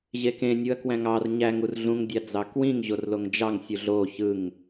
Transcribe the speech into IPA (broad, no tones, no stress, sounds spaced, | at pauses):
ʑ e k ẽ nʲ u ɐ̯ k w æ̃ ŋ ɑ r ɲ æ ŋ u r ɮ ũ ŋ dʲ ɑ d͡z ɑ k w ĩ ŋ ʑ o r l o ŋ d͡ʒ ɑ ŋ sʲ u ɮ o ç ɯ ŋ